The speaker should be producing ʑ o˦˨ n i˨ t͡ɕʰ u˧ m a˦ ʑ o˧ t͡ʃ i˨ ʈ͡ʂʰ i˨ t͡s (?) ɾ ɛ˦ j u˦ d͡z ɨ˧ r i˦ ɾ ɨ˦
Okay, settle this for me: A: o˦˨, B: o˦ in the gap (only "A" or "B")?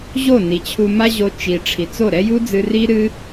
A